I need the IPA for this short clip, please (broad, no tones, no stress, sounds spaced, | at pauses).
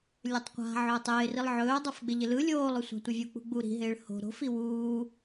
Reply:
lʲ ɵ tˤ qʷ a̤ ʕ ɵː tˤ ɪː r i lˠ ʕ ɵː dˤ o f ɡ͡b ɪ ʎ ɪ l ɯ lʲ oː lˠ ɵ sʷ a̤ tʷ ɪ vʲ u k͡p ṳ ɡ͡b u ɾ i̤ ɦ ɪː ɭ h o̤ ɾ o̤ f i w uː